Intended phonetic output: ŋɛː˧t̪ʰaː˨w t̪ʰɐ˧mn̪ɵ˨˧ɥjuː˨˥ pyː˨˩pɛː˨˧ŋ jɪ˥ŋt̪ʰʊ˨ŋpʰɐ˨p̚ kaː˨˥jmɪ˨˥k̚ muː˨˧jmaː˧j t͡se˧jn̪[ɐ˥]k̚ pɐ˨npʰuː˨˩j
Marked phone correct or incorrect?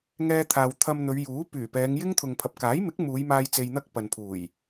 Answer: correct